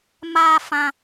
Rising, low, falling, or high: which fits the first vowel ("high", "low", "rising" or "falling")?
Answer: high